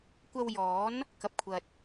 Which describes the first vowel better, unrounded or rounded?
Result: unrounded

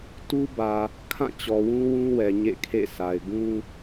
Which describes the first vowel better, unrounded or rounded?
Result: rounded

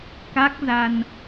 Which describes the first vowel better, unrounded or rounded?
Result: unrounded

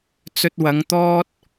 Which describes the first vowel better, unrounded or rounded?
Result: rounded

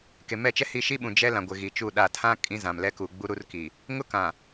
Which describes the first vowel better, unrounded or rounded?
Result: unrounded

